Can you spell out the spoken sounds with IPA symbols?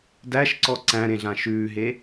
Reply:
dæʃǀɔ ǀæ̃ɾẽɮã ʃʉːɦe

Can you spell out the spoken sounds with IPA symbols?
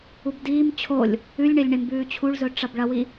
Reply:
ubdiːm t͡ɕʰolʲ | ʉlʲɳelʲɳem bʉːt͡ɕʰuɭzɵ ʈ͡ʂɐbɭɐwi

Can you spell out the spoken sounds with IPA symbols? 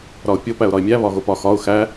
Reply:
ɾɒʊ̯pʲo pæʊ̯ɾɒɪ̯mʲæ βɒɣopɒxɒʊ̯ xæ

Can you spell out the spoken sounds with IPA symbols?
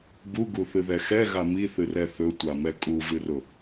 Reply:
buɡuθɨðɛ xɛɣa miθɨrɛ θɵtʷamɛ kʼuvɨrʊ

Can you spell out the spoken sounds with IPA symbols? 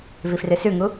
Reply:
vifrɨsʉŋu

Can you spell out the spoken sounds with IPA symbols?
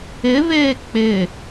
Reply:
ɪveː k͡pɪ

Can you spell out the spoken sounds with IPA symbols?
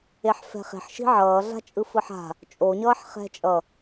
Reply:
eħfɛ̤χe̤ħ ʃi̤ʕʌːɮa̤t͡ʃʼɯ fɯħa̤ | t͡ʃʼoɲʌːħ χɛ̤t͡ʃʼʌ

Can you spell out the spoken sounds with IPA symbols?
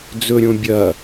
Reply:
d͡zɵɾʲõ bʲɐ

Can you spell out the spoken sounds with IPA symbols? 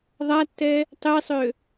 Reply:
ðˤatːɛ | tˤesˤø

